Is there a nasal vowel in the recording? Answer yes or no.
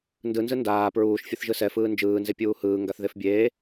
no